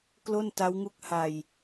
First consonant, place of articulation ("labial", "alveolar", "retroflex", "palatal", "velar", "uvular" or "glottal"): velar